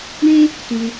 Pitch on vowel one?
high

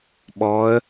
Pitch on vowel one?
rising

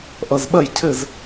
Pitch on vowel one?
low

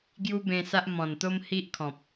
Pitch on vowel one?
high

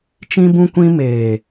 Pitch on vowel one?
high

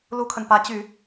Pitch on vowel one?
high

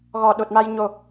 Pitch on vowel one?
low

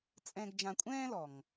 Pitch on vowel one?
low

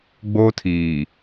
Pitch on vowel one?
high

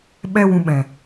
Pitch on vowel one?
high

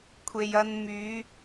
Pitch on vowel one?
low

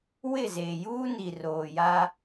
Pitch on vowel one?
falling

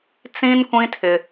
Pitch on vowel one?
high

